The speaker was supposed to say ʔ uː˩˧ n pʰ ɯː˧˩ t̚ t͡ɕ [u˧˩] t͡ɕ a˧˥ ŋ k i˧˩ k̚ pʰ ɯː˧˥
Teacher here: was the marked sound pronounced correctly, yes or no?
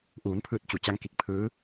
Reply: yes